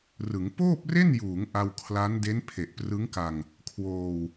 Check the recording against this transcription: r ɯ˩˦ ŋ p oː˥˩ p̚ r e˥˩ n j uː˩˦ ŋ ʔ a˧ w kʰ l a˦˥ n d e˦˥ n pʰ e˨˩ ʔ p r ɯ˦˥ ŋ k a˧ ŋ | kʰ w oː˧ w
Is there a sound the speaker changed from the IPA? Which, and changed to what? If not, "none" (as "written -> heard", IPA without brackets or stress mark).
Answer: none